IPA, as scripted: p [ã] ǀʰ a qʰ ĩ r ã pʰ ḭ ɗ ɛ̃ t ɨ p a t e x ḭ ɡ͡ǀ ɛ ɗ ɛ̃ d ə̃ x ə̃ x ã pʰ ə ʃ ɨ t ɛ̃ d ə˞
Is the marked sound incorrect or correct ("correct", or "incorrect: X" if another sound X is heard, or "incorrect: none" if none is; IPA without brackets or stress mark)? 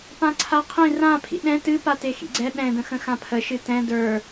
correct